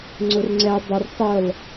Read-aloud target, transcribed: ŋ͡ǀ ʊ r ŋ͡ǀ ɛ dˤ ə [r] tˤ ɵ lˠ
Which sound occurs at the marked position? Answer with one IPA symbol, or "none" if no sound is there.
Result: r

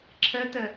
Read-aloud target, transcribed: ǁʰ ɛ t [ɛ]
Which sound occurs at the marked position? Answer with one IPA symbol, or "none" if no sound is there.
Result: ɛ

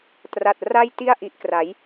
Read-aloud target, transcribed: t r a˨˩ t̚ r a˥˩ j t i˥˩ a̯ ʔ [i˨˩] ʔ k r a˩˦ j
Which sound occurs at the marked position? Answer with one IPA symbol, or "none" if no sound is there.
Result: i˨˩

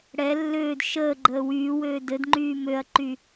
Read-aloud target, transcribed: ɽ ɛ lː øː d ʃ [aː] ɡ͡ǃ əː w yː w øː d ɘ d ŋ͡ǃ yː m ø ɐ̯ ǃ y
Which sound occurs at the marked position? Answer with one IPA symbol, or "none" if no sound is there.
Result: əː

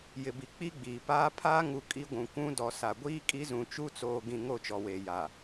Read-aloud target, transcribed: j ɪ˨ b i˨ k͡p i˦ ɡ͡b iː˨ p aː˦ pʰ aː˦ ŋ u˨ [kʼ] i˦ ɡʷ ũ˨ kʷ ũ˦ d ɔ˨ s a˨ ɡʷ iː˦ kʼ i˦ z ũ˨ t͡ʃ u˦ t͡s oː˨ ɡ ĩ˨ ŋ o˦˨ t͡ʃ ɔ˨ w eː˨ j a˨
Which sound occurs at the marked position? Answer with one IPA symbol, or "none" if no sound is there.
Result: kʼ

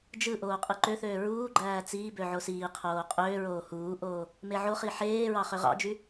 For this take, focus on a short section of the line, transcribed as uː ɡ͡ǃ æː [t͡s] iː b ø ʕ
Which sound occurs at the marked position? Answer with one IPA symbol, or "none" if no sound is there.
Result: t͡s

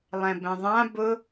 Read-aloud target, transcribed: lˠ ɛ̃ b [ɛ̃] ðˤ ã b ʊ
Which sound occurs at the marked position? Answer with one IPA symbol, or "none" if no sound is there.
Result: ɛ̃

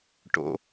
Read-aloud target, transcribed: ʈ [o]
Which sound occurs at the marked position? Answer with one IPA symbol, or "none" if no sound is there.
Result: o̰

